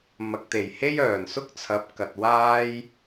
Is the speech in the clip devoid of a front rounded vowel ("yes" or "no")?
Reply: no